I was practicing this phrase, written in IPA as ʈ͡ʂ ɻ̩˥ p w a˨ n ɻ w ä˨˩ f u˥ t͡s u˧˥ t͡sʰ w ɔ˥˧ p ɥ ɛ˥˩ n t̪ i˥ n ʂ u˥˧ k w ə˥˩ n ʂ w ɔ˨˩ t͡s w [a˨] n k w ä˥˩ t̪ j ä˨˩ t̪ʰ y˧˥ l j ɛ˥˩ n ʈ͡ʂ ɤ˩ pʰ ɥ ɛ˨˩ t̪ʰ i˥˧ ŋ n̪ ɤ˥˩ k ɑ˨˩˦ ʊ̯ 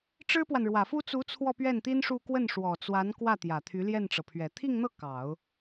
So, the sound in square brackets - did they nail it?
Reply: no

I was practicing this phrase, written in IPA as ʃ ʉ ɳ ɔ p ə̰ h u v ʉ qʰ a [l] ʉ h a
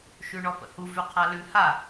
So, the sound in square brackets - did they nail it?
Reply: yes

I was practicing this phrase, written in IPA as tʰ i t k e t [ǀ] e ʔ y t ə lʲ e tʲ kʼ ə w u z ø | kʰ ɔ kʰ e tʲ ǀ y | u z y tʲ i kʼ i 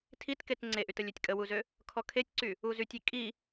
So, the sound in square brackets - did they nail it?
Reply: no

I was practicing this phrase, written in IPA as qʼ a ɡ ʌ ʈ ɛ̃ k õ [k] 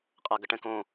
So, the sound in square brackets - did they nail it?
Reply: no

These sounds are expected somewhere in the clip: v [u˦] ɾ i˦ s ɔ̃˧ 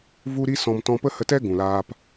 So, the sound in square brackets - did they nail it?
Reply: yes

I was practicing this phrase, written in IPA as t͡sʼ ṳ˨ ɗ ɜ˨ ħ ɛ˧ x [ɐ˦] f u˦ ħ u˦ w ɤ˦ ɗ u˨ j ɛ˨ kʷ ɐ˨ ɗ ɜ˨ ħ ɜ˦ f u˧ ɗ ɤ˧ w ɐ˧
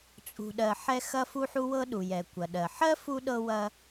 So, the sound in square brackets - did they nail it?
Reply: yes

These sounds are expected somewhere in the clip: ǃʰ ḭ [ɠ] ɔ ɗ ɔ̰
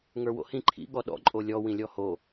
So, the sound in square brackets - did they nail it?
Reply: yes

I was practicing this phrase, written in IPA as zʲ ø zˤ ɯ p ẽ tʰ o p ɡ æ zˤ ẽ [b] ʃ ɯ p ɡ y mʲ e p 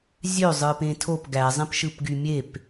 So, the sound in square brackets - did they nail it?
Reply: no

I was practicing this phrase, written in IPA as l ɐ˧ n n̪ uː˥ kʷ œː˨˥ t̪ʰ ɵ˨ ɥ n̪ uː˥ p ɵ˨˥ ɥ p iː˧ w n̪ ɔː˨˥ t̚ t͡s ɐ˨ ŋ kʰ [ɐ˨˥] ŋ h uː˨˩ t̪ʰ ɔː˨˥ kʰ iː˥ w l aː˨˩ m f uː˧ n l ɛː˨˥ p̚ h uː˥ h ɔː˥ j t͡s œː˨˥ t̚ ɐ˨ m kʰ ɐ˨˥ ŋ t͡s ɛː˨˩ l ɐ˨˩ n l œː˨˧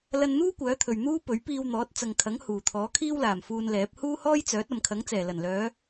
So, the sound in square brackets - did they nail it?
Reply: yes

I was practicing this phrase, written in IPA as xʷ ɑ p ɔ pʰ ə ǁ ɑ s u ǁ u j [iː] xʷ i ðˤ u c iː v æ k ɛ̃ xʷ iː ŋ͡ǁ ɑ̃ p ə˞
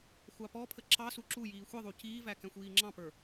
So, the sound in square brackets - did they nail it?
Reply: yes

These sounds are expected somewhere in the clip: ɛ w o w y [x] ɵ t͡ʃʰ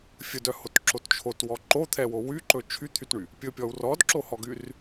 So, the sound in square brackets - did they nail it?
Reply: no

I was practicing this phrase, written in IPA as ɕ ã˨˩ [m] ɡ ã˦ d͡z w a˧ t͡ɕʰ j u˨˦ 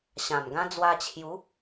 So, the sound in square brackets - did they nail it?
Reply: yes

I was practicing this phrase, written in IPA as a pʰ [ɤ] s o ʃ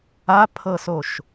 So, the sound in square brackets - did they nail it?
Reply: yes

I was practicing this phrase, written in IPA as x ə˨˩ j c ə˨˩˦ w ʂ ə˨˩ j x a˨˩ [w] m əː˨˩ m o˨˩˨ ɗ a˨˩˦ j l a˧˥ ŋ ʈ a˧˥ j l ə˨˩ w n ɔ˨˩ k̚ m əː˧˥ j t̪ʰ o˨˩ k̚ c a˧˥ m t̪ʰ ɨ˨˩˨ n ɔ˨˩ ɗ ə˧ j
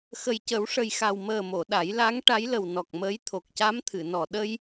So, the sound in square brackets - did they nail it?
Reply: yes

